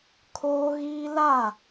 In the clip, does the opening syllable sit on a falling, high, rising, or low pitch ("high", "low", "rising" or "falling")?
high